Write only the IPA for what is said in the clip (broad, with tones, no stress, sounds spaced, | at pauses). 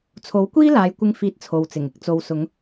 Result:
t͡sʰ o˨˥ w kʷ iː˥ l aː˨˧ j kʷ ɪ˧ ŋ f iː˧ t̚ t͡sʰ o˨ w t͡s ɪ˨˩ ŋ ɪ˨˥ k̚ t͡s o˨ w s ʊ˨˧ ŋ